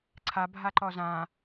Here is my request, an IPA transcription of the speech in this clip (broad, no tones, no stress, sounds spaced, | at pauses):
ǀʰ a bʱ a ǃ ɔ z ã